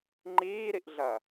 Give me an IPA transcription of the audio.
ŋ͡ǃiːɾiʔɮɐː

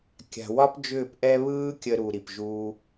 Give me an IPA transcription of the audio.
kʲa̤˨wɒ˦p d͡ʒʏː˦˨pʔɛ˦ βɯː˦kʲə˧ɾu˨ ɾi˨pʒuː˦

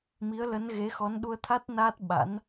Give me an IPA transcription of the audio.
mi˨˦ə̯lə˨˦nɣe˨˦ xɔ˨˦nɗu˧ə̯t̪ʰa˦˥t̚ na˦˥t̚ ɓa̰˧˥n

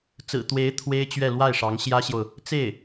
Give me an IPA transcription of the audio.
t͡sɹ̩˨˩ t̪we˧˥ɪ̯ t̪ʰwe˥ɪ̯t͡ɕɥɛ˥˧ lwa˥˩ɪ̯ʂɑ˧˥ŋ ɕjä˥ɕjo˨ʊ̯ | t͡se˥˩ɪ̯

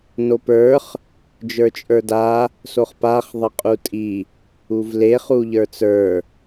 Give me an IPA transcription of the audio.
nopə˞χ | d͡ʒə˞t͡ʃʼə˞da | soχpaχ ðˤəqʼutʼi | uvle χuʎə˞t͡sə˞

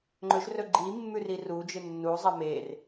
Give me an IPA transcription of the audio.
ŋ͡ǃɵʒrɵ ɡ͡ǃimːʉ rirud͡ʒɨ nːuzˤɐ mer

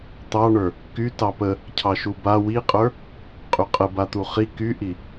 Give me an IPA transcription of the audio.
t̪ɑɳə˞ | ky tɑpə | cʰɑʃuba wiqʼə˞ | qʼyqʼə bat̪uχi kyʔi

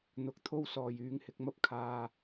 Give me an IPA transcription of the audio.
n̪ʊ˨˥k̚t̪ʰo˥wsɔː˨j yː˨˧ŋhɪ˨˥k̚mɐ˥p̚ kʰaː˧

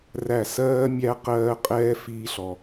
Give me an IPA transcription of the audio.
ræ˦˨ sɜː˦mʲæ˦ qɜː˦ qʼɛː˦ fiː˦ɬɔ˧

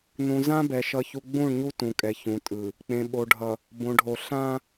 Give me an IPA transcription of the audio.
nũ˨zã˦bɛ˨ ʃʌ˦çu˦ ɡ͡bũ˦˨ɳɲu˦ tũ˨kʼɛ˨çũ˨tʼɯ˨ | k͡pẽ˨ɓo˨ɖʱʌ˨ | bõ˨ɖʱo˨ ɬã˦

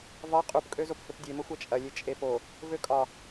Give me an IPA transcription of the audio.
vɒ qʼupkʼøzop høpdʲemə xʷɐt͡ʃʼɐlʲe t͡ʃʼepo | vøkʼɒ

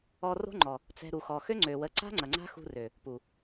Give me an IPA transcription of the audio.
ɔ˧ro̤˦ŋ͡ǃɔ˨ | t͡sɛ̤˧ ɾu˨xɔ˨xø˦ ŋ͡ǀø˨wə˨˦ǀa̤˦ ŋ͡ǀɐ˨ŋ͡ǀa̤˦xṳ˧rø˨ | pu˨

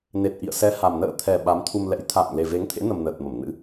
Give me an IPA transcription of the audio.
ne˨˩t̚ʔḭ˧˨ə̯ sɛ˨˦ha˨˩m nə̰ː˧˨t̪ʰɛ˨˩ ɓa˨˦mt̪ʰu˧mlɛ̰˧˥j t̪ʰa̰ː˧˨ŋ le˨˩ve˨˦ŋt̪ʰḛ˧˥nə˨˩m nəː˨˩t̚mə˧˩mnɨ̰˧˥

